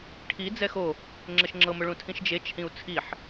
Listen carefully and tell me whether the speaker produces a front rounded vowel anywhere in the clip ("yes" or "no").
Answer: no